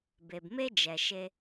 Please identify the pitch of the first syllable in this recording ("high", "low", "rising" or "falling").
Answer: low